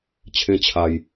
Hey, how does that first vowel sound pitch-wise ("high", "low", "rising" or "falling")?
high